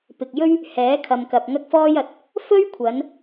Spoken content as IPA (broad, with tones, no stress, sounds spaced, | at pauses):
p ɪ˨ k̚ j ɵ˥ ɥ | h ɛː˨˥ kʰ ɐ˨ m k ɐ˨ p̚ ŋ ɐ˥ k̚ f ɔː˥ j ɐ˨˥ t̚ | f ɵ˥ ɥ kʷʰ ɐ˨˧ n